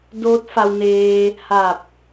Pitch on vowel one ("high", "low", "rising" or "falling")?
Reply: rising